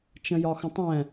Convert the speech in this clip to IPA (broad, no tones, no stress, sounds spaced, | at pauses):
t͡ʃ ə̃ j ɒ x ə̃ tˤ ɛ̃